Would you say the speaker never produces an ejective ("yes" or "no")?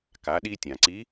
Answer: yes